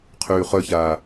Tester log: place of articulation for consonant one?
uvular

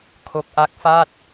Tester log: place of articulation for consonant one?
velar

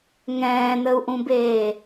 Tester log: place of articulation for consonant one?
velar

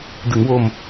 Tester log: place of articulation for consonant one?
alveolar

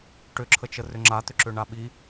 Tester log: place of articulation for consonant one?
retroflex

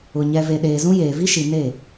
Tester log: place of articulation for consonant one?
palatal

